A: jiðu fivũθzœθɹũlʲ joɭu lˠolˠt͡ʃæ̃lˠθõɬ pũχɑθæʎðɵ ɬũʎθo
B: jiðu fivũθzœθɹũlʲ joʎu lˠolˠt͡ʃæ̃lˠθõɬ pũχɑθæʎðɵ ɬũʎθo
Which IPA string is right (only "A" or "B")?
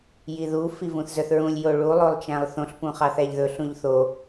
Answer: A